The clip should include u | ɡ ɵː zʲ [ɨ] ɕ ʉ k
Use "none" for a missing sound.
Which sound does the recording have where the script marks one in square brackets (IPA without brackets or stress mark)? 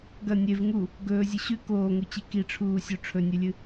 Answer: ɨ